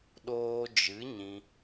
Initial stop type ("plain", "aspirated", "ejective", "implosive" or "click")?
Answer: implosive